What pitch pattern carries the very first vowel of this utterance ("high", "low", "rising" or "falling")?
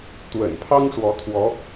low